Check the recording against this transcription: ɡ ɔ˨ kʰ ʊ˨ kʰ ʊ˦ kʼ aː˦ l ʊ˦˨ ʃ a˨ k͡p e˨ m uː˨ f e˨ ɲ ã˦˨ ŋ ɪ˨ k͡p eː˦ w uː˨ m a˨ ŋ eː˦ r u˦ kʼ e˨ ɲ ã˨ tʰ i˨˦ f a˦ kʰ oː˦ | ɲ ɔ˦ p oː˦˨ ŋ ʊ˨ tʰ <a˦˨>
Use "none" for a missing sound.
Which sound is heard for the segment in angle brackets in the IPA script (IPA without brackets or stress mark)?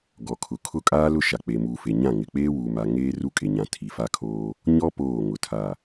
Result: a˦˨